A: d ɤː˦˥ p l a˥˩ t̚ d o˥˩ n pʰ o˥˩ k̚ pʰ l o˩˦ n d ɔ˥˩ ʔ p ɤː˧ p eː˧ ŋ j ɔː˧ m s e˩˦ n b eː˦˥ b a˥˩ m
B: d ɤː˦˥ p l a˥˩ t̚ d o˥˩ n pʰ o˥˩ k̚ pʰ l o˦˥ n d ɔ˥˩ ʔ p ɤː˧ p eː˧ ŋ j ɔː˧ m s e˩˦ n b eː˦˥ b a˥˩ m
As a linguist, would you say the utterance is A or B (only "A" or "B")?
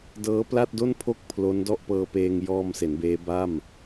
B